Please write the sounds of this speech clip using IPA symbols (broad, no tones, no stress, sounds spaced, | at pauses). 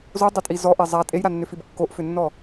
z o dˤ e tʼ i z ɔ ʔ e zˤ a tʼ e j ɾ a nː ʏ f i b kː o ʔ f ʏ nː ɔ